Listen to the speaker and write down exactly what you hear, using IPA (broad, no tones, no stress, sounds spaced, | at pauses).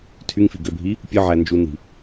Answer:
tʰ y ŋ f i ɡ ø bʱ i | pʲ ɯ ʕ æ n d͡ʒ u n i̤